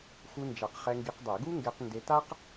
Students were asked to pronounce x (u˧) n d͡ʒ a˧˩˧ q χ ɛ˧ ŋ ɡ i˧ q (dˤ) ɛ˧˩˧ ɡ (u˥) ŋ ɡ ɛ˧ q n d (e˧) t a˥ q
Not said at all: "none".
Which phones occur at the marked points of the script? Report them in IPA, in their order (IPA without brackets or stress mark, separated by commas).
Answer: u˧, dˤ, u˥, e˧